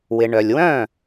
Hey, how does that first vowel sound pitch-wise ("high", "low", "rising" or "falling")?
low